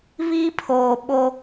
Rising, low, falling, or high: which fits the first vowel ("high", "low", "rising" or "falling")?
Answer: high